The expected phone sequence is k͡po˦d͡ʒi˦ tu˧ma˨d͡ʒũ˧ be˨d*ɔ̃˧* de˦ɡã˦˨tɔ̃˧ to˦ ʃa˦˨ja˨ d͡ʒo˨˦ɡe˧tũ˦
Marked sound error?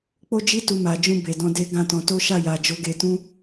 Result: no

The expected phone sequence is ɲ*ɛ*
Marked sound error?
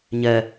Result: no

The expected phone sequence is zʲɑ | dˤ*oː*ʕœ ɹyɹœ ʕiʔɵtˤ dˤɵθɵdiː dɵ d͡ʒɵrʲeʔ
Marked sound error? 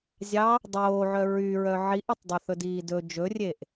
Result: no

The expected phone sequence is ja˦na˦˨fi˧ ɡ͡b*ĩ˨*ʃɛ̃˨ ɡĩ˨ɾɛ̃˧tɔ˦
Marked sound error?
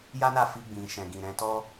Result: no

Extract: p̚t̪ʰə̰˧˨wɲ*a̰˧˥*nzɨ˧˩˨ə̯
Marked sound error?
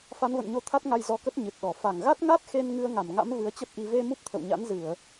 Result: no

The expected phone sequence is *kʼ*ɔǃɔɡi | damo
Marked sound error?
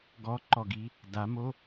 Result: yes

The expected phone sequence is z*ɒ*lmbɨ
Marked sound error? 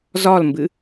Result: no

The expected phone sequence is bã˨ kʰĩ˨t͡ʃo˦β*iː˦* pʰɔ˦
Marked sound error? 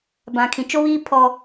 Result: no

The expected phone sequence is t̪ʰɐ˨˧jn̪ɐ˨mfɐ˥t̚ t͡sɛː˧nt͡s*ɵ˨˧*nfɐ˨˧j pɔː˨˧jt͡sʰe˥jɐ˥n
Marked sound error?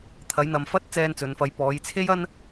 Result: no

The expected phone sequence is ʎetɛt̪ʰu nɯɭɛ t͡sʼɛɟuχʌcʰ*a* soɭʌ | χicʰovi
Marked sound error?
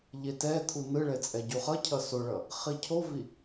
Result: yes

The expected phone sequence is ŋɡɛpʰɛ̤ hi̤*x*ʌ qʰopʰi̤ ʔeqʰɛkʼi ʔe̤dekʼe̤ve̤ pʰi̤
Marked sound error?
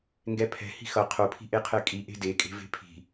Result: no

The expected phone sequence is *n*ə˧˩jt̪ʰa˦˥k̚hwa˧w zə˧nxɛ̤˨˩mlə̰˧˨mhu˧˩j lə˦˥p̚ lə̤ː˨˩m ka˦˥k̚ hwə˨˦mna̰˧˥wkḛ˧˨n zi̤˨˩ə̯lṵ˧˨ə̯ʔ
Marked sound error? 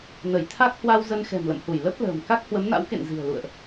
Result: no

